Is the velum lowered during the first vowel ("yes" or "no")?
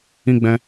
yes